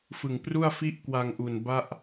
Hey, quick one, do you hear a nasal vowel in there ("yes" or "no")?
no